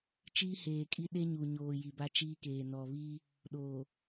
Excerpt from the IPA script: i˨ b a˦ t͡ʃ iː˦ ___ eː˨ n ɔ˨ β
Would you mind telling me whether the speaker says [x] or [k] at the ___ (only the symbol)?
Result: k